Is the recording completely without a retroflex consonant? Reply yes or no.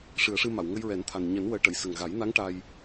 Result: no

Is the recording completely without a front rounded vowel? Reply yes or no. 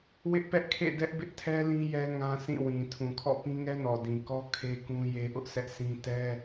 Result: yes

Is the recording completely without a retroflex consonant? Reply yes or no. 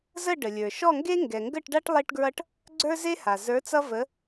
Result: no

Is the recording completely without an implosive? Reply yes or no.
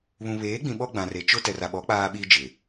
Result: no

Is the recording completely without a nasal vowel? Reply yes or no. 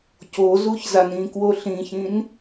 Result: no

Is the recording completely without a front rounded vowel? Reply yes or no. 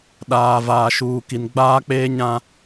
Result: yes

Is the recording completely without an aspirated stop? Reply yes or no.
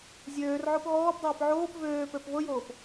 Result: yes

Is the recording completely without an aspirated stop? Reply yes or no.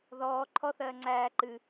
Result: no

